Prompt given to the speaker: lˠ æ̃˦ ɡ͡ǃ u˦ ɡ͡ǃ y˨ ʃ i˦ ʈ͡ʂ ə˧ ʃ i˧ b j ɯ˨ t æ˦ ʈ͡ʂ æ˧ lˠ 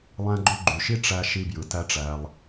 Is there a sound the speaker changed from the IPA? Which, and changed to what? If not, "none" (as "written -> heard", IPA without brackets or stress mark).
ə˧ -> æ˧